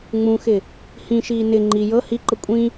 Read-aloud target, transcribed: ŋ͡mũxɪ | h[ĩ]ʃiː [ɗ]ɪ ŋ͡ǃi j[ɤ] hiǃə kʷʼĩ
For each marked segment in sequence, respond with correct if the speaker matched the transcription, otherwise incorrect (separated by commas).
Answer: correct, incorrect, correct